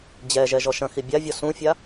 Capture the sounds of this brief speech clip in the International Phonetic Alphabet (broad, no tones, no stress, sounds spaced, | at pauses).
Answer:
d͡ʑ ɛ ʒ ɛ ʒ ɔ ʃ ɐ̃ x i bʲ a vʲ ɔ s ũ fʲ a